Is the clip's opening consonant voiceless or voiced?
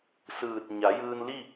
voiceless